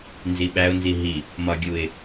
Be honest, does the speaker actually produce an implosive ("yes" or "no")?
yes